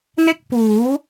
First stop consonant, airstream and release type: plain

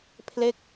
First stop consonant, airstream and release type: aspirated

